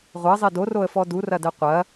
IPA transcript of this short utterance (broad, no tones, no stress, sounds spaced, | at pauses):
ʁʷ ɐ zˤ e d o r o ə̯ f ɔ d u r ɐ d ɛ qʷ ɐ